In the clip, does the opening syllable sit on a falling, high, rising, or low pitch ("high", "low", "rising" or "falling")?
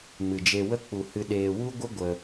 low